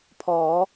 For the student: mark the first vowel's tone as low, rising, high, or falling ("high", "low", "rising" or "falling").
rising